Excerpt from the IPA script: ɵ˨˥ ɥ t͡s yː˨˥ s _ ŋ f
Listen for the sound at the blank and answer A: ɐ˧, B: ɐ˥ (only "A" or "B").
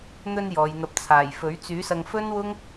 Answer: A